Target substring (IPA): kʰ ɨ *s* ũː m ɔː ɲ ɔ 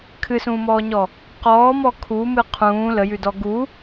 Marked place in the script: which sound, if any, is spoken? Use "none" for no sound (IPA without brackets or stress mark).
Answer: s